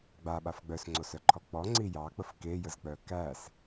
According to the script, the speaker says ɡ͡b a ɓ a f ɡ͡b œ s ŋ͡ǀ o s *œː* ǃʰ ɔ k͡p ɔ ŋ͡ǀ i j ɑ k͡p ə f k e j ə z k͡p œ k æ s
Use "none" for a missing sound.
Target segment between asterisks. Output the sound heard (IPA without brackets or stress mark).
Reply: œ